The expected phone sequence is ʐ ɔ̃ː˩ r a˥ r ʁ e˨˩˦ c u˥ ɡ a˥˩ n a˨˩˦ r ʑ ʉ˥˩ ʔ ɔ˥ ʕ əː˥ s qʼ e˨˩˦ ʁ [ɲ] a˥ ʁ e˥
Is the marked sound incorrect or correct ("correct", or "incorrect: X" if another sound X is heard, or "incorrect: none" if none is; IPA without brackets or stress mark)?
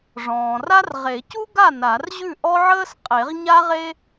correct